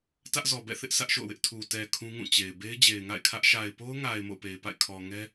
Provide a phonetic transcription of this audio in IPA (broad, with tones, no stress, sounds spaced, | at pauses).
t ä˦ ʔ z ɔ˨ b ɛ̰˦˨ θ ɪ˦ ʔ s ä˦ ʔ ʃ o̰˦˨ ʊ̯ w ɪ˦ ʔ tʰ u˨ t ɛ˨ kʰ ũ˦ ŋ ũ˦˨ t͡ɕ e˨ ɪ̯ b e˦ ɪ̯ d͡ʑ e˨ ɪ̯ ŋ a̰˦˨ ɪ̯ kʰ ä˦ ʔ ʃ a˨ ɪ̯ p o˦ ʊ̯ ŋ a˨ ɪ̯ m o̰˦˨ ʊ̯ p e˨ ɪ̯ p a̰˦˨ ɪ̯ kʰ ɔ˨ ŋ ɛ˦